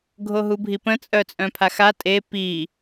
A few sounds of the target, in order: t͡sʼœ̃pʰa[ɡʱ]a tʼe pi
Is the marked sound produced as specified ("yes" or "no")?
no